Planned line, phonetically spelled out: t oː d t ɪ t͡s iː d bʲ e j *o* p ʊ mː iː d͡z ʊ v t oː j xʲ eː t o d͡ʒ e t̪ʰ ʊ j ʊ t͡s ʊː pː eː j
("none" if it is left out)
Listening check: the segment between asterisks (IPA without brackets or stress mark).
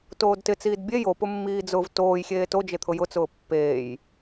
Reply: o